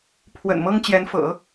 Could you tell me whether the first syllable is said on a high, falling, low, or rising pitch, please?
low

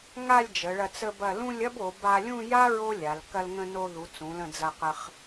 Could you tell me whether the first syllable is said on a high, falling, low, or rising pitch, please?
falling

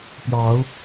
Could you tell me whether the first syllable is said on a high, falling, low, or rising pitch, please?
rising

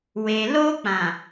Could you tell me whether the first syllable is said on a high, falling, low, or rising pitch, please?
low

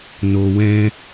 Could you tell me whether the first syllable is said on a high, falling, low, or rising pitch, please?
low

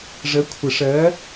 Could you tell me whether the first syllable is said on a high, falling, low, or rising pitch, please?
rising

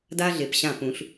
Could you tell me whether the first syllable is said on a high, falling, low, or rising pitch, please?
high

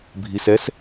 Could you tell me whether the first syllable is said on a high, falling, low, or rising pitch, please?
low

